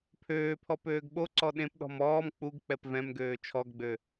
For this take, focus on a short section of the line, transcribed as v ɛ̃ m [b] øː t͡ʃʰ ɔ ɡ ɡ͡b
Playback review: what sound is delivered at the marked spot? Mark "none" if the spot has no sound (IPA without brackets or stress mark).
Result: ɡ